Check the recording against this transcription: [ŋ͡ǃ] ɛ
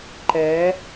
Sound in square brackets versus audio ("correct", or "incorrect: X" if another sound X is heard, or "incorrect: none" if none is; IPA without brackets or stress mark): incorrect: ǃ